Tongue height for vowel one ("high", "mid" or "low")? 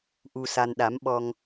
high